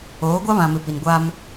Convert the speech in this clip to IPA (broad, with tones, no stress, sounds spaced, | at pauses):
oː˨˦ ɡʷ a˦ β ã˨ m ɪ˨ p i˨ n ɡʷ a˦ m